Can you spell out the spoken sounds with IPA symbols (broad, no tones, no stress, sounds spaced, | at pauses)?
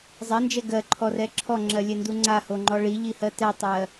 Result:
zˤ ɛ n d͡ʒ ɛ ɡ ɜ ǃʰ ɔ r ɛ ǁʰ ɔ ŋ͡ǁ ɜ lʲ ɛ n d u ŋ͡ǀ a h o ŋ͡ǃ ɔ ɭ i ʎ i h ɜ t ɛ tˤ ɜ